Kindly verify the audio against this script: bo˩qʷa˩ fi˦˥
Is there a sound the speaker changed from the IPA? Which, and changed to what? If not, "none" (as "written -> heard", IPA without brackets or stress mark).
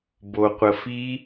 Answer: a˩ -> ə˩